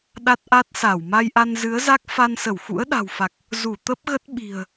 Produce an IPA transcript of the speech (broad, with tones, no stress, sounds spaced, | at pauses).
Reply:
ɗ a˦˥ t̚ ʔ a˦˥ t̚ s a˧˩ w m a˧ j ʔ a˧ n z ɨ˨˦ ə̯ z a˦˥ k̚ f a˧ n s ə˧˩ w x ṵ˧˥ ə̯ ɗ a̤˨˩ w f a˨˩ k̚ | z u˧˩ t̪ ə˦˥ p̚ ɣ ə˦˥ t̚ ɓ i̤˨˩ ə̯